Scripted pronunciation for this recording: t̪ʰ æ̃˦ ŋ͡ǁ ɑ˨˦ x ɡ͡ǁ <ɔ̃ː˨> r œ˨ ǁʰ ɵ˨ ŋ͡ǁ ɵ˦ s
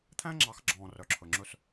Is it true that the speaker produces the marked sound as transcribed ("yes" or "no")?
yes